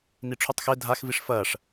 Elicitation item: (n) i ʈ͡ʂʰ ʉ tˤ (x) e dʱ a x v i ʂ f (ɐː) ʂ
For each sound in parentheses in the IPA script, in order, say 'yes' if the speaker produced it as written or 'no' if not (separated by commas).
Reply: yes, yes, yes